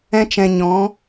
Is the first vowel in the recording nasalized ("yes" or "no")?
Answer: yes